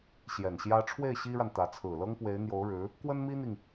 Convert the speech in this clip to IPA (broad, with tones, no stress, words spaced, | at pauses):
ɕjɛ˨˩nɕjä˥ ʈ͡ʂʰwe˥˩ɪ̯ ɕi˥ɻa˨n t̪ä˧˥ t͡sʰɹ̩˨˩lɤ˥ŋpwe˧˥ɪ̯ n̪jo˧˥ʊ̯ɻɻ̩˧˥ | kwə˥nmi˥n̪i˨ŋ